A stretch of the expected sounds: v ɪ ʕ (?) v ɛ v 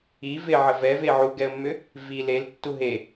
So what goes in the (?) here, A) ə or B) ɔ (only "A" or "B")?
A